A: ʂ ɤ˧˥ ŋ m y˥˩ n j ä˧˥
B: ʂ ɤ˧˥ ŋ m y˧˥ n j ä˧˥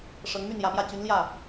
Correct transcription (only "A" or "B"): A